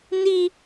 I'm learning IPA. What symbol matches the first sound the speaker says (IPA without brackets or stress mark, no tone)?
n